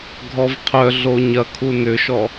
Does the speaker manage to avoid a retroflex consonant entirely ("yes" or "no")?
yes